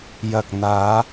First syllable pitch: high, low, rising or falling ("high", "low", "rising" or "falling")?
low